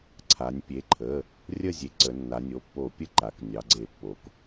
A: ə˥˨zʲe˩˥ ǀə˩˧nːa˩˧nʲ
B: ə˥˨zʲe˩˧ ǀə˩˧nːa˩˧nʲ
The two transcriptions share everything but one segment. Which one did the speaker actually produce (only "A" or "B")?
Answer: A